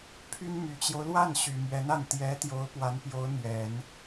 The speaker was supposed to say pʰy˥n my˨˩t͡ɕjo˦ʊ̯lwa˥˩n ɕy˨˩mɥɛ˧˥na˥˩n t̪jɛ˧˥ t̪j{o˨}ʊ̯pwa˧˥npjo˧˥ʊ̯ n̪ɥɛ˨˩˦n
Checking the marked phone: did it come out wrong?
yes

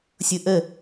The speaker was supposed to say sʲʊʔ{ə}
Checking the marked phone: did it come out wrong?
no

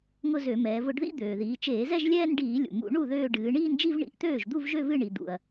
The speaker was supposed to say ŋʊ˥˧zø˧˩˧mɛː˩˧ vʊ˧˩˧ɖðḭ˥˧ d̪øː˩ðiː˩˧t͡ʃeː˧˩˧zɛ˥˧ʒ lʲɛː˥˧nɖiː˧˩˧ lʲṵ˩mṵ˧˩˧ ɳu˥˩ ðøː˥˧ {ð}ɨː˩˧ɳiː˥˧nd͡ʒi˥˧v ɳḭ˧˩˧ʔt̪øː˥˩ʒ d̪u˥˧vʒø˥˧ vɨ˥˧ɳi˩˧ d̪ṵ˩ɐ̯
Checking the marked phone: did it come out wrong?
yes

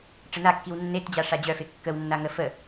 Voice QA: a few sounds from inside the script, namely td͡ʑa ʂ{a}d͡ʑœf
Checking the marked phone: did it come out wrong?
no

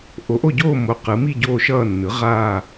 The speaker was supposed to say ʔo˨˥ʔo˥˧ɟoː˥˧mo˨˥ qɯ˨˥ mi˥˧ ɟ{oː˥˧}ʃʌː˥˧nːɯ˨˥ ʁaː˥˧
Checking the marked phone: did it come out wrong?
no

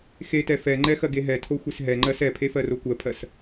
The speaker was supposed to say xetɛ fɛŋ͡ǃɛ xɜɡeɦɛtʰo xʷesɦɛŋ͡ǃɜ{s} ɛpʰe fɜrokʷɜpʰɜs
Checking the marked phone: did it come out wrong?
no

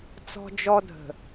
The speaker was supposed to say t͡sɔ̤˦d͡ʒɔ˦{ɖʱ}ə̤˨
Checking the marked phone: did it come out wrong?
yes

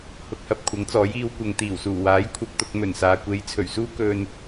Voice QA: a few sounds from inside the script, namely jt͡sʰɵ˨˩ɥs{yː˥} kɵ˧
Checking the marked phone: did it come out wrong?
yes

